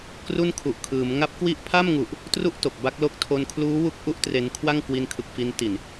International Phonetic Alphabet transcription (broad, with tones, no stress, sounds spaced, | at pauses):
k r u˥˩ n kʰ u˨˩ ʔ kʰ ɯː˩˦ m ŋ a˦˥ p̚ k w i˥˩ ʔ pʰ a˥˩ m ŋ u˨˩ ʔ | t r u˥˩ ʔ t o˨˩ k̚ b a˦˥ k̚ l o˦˥ k̚ tʰ o˧ n kʰ l uː˦˥ w u˦˥ k̚ ʔ u˥˩ ʔ t r e˧ n kʰ w a˥˩ ŋ k w i˧ n kʰ ɯ˨˩ k̚ f i˧ n t i˨˩ n